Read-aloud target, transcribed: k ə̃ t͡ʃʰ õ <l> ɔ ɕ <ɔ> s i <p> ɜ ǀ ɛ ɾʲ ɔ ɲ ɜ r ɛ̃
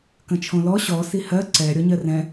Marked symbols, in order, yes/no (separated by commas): yes, yes, no